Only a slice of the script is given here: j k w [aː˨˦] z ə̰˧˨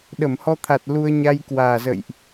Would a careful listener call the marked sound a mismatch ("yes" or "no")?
yes